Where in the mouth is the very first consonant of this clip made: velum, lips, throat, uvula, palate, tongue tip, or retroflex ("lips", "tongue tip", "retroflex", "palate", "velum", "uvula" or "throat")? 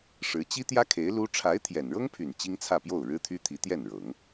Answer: retroflex